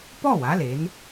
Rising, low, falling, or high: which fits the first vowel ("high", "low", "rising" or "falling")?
falling